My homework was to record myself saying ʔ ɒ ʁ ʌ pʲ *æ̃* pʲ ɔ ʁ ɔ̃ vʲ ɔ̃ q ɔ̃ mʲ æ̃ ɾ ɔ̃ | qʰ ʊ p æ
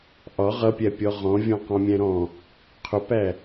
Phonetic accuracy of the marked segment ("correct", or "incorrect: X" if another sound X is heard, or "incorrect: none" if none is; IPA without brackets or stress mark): incorrect: æ